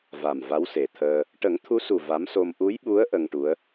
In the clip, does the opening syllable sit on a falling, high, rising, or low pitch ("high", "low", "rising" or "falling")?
low